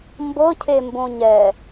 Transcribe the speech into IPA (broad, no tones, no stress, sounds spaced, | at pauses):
m b ɤ cʰ e m b õ ɲ ɛ